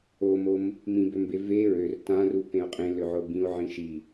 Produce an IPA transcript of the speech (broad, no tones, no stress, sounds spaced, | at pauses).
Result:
o m o m | m ĩ b ø m b e v e ɹ ø r t ã r u p ẽ o̯ qʼ ẽ l ø ʕ o b ĩ o̯ ʕ ĩ ʃ i